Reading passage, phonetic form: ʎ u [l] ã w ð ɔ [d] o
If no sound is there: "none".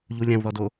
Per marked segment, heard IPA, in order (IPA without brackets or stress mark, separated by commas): lʲ, d